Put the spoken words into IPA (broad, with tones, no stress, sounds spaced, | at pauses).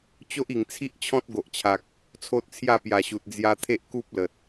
t͡ɕ o˦ ʔ i˨˩ ŋ t͡sʰ i˦ ʔ t͡ɕʰ ɔ̃˦ t̚ ɡ o˨ ʔ t͡ɕʰ a˨ k̚ | t͡sʰ o˦ t̚ t͡sʰ j a˥˧ p j a˨˩ ɕ u˨ t̚ d͡z j a˧ t̪ʰ e˦ ʔ k u˦ p̚ l ə˨ t̚